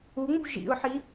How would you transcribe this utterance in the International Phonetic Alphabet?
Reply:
u ŋ͡m ṳ ʒ ḭ ʊ̯ ħ i

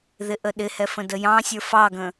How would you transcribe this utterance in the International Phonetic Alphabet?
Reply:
ð ɪ ʔ ə ɗ ɪ h ɛ f ə̃ d ə j ɑ̃ sʲ ə˞ f ɑ ɡ ə̃

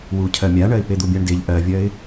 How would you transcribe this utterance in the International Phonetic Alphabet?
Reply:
w u cʰ ɜ mʲ a ɳ ɜ ɪ̯ p e d̪ u bʲ a ɳ d e ʎ ʔ ɜ vʲ ɜ ɪ̯

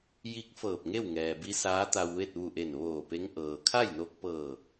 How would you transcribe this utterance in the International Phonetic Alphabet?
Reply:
j i˧˥ k̚ f ɤː˧˩ p̚ ŋ e˥˨ w ŋ ɛː˩ b i˧˥ s aː˧˥ t̪ a˧ w ʋ e˥˨ t̚ ʋ u˧˩ ʔ e˧˩ n ʋ oː˧˩ p e˧˥ ŋ ʔ ɤː˩ kʰ a˥˨ j n o˧ k̚ p ɤː˧˩

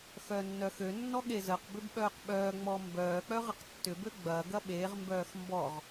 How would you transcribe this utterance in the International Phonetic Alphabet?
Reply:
x œ nː œ x ø nː ɔ ɠ e z ə q b ʏ b ɓ œː q ɓ œː ŋ͡m ɔ m b œː k͡p œ ʁ ə q tː ʏ b ø ɡ͡b ɐː ɡ ɐ ɓ e ʁ m b œː x m b ɔ ʁ

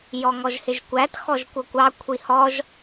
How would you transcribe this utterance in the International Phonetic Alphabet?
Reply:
j ɔ ŋ ɔ ʒ h ɪ ʒ kʷ æ t x ɔ ʒ kʷ ʌ kʷ ɑ kʷʰ i h ɔ ʒ

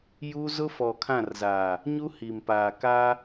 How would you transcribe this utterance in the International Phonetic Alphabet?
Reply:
j u˦ z ʊ˦ f ɔ˨ kʰ ã˦˨ r z a˨ | ɲ u˦ h i˨ m p aː˨ k a˦

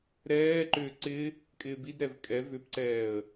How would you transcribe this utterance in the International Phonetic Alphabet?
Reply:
ɾ ɛː ǃ ʏː ǀ ɪ | kʼ ɪː b i d ɾ ɛ v kʼ ɛ v ʏ p ǀ ɛː ə̯

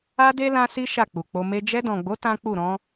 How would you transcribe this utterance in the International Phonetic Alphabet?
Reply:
a˦ d e˦ l ã˦ s i˦ ʃ a˦˨ k͡p u˨ k͡p o˧ m e˧ d͡ʒ ɛ˧ d ɔ̃˨ ɡ͡b o˨˦ t ã˦ k͡p u˦˨ ɾ ɔ̃˨˦

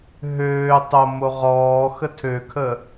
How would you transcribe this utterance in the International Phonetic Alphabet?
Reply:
ɦ øː tˤ o m o ʁ ɔː x ə tʰ ø kʰ ə

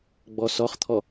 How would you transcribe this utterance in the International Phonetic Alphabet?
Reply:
ɡ͡b ɔ s ɔ χ t̪ʰ ɔ

